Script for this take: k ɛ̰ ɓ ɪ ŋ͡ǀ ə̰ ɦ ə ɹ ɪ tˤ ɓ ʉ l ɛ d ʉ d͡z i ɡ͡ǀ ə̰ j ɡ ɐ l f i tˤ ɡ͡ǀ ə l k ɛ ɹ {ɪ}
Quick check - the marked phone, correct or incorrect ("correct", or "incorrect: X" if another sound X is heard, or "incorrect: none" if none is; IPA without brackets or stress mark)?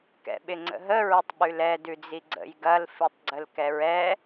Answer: incorrect: ɛ